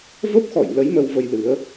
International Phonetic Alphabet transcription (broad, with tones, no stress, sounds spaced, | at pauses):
v ə˦˥ p̚ x ɔ̰˧˨ j l ə˨˦ j m ə˧ w v ə˧ j l ɨ˨˦ ə̯